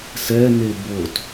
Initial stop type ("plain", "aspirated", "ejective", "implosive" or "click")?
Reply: plain